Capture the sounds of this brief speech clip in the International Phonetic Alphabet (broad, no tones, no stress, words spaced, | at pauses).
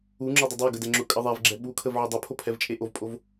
uŋ͡ǁodˤə dˤoɡədɛ ŋ͡ǁʊkʼə ðˤɛvɡ͡ǁɛ ɓukʰəvʕʊ dˤʊpʰopʰɛvt͡ʃʼe ʔovpʼov